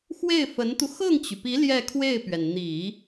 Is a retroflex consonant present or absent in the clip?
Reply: absent